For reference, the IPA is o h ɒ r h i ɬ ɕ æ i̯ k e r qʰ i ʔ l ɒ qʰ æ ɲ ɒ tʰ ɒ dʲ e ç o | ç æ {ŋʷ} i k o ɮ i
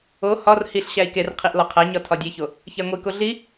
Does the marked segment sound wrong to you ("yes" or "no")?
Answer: no